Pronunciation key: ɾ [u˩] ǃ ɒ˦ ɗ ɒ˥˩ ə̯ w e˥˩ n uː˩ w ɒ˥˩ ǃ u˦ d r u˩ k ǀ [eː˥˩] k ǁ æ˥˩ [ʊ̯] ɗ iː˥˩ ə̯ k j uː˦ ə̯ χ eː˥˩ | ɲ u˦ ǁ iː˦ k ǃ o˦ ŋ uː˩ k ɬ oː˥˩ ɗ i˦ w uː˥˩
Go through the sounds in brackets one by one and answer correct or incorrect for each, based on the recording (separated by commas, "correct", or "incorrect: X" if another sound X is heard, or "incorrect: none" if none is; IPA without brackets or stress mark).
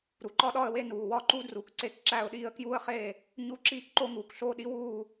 correct, incorrect: e˥˩, correct